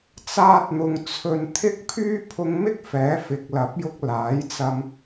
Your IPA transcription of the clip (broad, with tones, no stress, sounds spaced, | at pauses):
t͡s aː˧ t̚ n̪ ʊ˨ ŋ t͡sʰ ɵ˧ n t̪ʰ ɪ˥ k̚ pʰ yː˥ pʰ ʊ˧ ŋ m ɪ˥ k̚ f ɛː˨˥ f ɪ˨˥ k̚ l ɐ˨˥ p̚ j ʊ˧ k̚ l aː˨˥ j t͡s ɐ˧ m